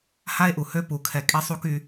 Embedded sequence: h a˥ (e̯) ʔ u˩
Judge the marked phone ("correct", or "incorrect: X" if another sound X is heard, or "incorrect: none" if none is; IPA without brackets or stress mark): correct